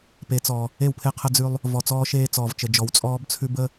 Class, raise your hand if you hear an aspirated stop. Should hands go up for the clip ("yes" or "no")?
yes